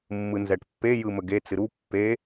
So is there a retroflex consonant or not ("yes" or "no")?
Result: yes